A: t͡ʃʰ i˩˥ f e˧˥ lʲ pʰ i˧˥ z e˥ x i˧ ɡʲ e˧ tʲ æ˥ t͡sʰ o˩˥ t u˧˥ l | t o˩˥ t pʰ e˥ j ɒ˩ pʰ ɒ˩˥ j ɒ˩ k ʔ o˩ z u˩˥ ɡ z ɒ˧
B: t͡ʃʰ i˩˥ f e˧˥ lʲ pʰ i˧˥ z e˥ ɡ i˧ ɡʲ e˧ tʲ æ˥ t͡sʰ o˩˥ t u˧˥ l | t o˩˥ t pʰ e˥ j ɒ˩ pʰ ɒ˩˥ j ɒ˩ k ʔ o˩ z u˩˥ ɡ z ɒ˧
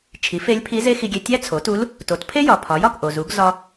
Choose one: A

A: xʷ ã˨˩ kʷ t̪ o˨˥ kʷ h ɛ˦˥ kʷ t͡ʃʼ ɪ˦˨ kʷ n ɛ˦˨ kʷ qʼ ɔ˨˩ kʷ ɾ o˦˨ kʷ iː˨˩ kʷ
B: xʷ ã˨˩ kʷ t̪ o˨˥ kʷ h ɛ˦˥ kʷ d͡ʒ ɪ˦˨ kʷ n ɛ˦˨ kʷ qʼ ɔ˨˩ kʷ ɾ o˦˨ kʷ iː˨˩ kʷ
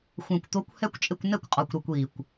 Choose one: A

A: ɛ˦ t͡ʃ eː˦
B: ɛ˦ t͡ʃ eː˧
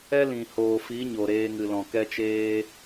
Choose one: A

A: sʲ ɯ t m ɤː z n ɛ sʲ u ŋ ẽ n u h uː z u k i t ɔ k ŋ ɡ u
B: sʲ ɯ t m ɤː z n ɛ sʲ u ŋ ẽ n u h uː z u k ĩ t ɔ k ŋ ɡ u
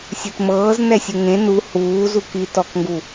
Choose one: A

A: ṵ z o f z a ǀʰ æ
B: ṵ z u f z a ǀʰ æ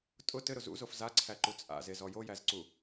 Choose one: A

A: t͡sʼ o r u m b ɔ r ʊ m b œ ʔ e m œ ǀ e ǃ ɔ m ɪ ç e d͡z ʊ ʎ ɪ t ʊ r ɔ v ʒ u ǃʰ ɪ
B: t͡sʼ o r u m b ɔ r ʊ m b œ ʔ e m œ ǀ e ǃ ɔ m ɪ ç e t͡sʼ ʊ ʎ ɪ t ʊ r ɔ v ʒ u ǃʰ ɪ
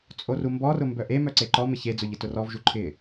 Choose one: A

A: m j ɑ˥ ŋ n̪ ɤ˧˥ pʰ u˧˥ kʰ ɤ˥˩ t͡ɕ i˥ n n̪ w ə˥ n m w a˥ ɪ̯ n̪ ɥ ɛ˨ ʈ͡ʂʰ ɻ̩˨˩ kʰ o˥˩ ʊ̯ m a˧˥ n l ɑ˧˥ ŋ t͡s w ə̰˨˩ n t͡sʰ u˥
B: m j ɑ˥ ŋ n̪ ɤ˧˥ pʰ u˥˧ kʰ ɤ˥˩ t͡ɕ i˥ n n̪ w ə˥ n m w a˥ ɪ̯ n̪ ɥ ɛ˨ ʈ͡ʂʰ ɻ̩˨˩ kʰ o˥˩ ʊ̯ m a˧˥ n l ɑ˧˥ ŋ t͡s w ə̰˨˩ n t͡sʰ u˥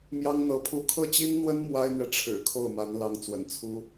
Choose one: B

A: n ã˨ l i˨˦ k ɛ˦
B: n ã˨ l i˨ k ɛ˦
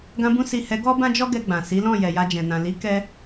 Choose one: A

